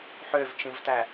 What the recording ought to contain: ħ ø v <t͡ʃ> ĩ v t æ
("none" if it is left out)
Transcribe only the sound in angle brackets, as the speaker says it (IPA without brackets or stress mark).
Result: t͡ʃ